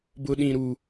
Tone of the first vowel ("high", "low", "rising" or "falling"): high